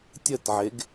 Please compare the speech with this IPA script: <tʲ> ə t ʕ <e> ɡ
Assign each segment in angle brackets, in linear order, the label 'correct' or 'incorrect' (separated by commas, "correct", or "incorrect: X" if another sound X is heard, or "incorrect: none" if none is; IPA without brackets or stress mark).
correct, correct